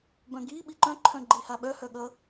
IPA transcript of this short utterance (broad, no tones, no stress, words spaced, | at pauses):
bœ̃ɡi ɓiǃœ̃ǃʰœ̃ ɡ͡ǃihaɓœhœ ɠʌ